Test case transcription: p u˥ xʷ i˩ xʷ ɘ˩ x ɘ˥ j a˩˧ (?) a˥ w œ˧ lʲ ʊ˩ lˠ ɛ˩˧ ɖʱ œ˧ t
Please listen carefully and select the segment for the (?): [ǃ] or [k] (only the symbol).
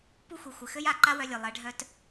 ǃ